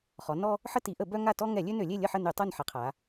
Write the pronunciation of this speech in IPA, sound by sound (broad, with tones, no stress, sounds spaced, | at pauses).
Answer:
χ ɔ˩˧ n ɔ˦ | ħ ə˦ t i˩˧ ʔ ə˧˩˧ b œ˦ ŋ a˦˨ t ɔ˦ ŋ ɛ˧˩˧ lʲ ø˦ n ø˧˩˧ lʲ e˦˨ lʲ ə˦˨ ħ ə˦˨ n y˧˩˧ tˤ u˦˨ n ħ ɛ˩˧ qʰ a˩˧